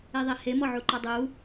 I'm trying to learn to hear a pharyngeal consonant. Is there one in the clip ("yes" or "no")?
yes